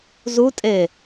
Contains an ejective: yes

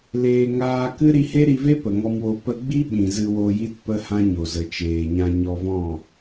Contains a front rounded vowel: no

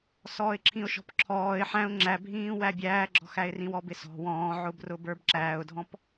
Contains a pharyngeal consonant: yes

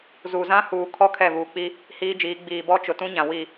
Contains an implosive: no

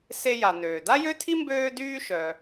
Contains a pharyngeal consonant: no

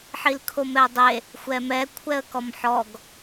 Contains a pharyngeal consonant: yes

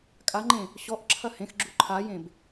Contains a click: yes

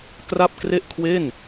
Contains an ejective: no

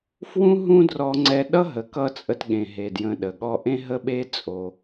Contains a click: yes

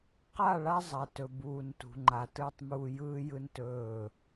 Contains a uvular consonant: yes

